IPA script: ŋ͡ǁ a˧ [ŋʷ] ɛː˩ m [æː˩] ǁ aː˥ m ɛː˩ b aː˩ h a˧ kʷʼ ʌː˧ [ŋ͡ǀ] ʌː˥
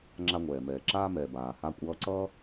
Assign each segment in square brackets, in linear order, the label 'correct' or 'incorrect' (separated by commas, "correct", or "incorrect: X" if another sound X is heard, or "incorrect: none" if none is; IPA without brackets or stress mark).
correct, incorrect: ɛː˩, incorrect: ǀ